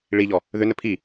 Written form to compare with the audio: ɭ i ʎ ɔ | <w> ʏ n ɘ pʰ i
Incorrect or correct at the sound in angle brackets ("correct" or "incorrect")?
incorrect